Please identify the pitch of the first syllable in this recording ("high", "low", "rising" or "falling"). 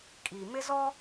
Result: low